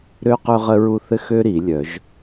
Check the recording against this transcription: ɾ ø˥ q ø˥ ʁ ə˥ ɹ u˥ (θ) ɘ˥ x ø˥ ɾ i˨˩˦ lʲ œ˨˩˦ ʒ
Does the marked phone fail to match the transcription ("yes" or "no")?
no